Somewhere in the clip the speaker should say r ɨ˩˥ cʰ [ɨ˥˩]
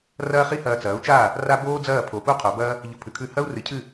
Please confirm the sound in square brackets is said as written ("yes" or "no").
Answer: yes